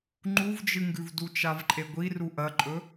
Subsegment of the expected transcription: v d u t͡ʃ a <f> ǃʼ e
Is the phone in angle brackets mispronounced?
yes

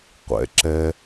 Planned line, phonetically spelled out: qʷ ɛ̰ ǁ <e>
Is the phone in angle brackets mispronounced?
yes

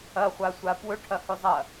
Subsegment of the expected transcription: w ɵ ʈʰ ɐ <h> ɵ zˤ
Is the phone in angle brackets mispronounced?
no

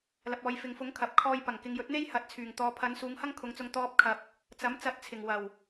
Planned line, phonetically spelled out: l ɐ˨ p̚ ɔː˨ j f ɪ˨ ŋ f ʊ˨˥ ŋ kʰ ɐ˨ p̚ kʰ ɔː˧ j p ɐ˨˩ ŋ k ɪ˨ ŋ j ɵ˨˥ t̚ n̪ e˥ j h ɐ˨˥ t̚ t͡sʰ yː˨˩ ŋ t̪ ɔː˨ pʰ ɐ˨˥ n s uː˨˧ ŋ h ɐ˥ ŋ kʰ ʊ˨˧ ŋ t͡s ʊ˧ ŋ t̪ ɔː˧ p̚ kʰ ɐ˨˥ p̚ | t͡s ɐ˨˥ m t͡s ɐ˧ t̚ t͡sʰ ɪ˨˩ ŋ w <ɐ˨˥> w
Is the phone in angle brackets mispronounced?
yes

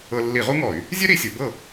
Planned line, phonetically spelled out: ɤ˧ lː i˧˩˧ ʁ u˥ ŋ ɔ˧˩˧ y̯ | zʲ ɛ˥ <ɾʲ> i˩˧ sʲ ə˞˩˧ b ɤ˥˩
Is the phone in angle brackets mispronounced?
yes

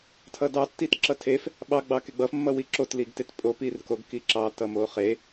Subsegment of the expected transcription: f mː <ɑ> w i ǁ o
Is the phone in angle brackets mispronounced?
yes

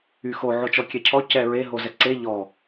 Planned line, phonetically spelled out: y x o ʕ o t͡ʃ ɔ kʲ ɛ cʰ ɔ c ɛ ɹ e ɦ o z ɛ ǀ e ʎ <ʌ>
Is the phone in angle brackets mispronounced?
yes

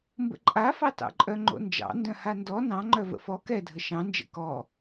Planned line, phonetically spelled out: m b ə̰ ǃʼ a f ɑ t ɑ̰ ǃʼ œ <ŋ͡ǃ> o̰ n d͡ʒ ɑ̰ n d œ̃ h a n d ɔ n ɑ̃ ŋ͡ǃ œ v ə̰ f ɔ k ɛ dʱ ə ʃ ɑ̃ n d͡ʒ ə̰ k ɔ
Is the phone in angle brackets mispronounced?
no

